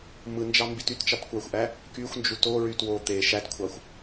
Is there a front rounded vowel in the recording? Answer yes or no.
yes